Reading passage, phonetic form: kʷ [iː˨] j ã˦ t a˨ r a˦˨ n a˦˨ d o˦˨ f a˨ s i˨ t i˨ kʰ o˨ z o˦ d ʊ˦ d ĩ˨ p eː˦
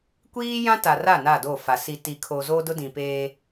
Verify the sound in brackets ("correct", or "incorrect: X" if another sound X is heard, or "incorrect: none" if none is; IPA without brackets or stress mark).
incorrect: iː˦